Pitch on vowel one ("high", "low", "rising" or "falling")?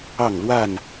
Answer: falling